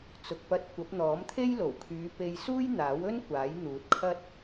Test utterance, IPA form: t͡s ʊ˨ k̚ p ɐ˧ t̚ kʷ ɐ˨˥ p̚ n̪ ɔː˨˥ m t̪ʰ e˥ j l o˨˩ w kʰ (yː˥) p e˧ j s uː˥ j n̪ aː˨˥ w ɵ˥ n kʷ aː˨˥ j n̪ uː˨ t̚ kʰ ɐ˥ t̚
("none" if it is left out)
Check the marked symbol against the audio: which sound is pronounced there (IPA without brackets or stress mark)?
yː˨˧